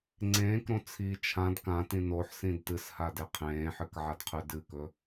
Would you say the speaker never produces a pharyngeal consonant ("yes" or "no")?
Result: no